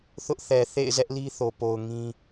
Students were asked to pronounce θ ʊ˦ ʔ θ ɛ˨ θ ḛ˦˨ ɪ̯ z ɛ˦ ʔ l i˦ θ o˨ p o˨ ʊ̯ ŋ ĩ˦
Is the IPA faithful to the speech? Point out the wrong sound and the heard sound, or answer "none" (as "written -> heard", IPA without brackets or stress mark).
none